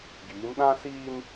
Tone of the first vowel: rising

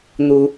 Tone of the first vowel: high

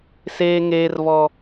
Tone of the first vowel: low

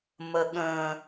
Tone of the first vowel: high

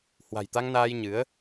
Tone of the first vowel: low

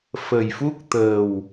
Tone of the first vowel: low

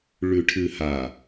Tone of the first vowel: low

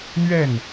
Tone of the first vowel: falling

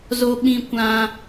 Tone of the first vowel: high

